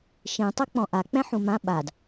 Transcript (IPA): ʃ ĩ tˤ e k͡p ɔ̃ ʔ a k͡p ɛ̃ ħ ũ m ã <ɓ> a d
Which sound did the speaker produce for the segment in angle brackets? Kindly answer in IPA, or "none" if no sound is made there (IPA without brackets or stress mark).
ɓ